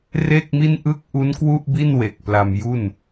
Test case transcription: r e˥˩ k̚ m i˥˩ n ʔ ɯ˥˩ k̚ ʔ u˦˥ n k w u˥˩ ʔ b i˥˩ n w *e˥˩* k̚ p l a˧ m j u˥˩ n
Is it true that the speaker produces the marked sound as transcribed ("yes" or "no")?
no